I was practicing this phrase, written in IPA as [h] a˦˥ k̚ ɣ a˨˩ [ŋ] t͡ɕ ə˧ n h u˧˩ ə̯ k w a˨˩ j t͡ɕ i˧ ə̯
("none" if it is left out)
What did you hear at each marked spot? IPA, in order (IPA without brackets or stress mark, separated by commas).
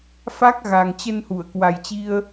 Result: f, ŋ